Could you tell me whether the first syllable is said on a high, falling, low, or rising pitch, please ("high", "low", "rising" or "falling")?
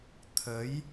rising